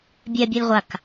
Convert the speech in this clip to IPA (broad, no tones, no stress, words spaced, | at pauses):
bʲɛ bʲɛlʁʷak